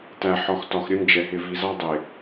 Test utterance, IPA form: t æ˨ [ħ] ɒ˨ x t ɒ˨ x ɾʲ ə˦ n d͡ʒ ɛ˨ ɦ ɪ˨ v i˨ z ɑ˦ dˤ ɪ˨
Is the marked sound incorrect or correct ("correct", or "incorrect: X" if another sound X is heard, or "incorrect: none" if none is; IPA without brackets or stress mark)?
correct